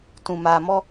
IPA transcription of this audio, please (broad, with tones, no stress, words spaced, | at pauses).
tũ˨ maː˨mɔ˦